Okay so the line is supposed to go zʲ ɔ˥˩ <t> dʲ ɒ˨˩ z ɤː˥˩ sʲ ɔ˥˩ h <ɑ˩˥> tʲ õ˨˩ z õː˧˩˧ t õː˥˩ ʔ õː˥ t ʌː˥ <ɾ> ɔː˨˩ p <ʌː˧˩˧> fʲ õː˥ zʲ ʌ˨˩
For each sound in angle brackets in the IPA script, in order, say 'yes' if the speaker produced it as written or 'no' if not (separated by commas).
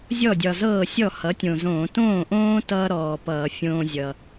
no, no, yes, yes